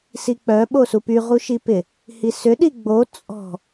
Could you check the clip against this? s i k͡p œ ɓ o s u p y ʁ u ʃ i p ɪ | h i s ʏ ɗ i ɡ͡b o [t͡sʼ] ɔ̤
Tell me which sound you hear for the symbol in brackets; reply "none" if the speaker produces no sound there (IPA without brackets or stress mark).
t͡sʼ